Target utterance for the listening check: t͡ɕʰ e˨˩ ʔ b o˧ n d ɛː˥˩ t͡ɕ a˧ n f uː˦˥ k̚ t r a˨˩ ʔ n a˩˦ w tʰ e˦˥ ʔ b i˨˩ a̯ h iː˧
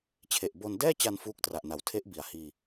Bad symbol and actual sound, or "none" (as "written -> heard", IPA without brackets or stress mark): none